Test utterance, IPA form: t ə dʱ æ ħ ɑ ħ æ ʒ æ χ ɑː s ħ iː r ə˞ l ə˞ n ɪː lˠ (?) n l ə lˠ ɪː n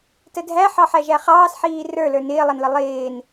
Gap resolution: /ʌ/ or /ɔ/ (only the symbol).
ʌ